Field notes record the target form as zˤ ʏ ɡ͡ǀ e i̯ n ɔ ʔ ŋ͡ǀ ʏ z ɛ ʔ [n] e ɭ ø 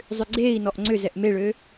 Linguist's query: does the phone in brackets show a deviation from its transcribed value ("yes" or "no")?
yes